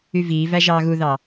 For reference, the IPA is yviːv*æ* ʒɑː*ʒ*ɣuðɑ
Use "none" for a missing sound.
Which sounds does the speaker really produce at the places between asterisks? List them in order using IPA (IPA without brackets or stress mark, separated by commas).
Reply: æ, none